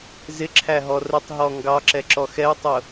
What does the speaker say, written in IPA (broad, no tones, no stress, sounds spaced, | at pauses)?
z ɪ ǁʰ æ ɦ ɔ r ə tˤ ɦ ɔ ŋ ɡ ɑ ǁ ɛ ǁ ɔ x ɛ u̯ tˤ ʊ